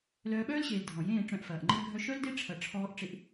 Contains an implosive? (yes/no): yes